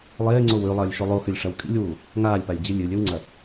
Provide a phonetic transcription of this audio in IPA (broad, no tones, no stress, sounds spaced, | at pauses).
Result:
lˠ eː ŋ͡ǀ o w ʉ lˠ ɐː lʲ ʃ o lˠ o x ɨ lʲ ʂ ɐ w kʼ ḭ lʲ w uː | ŋ aː lʲ p a lʲ d͡ʑ ɨ lʲ ɨ lʲ ɵ w ŋ͡ǀ ɐ